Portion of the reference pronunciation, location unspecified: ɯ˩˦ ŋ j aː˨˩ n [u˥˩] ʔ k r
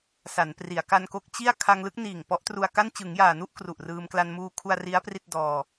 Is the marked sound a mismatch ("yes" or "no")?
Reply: no